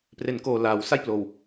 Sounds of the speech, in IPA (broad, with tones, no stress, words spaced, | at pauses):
pre˨˩nkoː˨˩ laː˩˦w sa˥˩jploː˨˩w